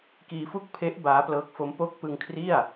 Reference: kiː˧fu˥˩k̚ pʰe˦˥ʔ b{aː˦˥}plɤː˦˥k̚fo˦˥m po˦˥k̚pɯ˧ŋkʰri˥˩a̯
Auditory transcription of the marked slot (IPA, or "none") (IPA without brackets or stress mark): aː˦˥